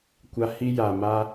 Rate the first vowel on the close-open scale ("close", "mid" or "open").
open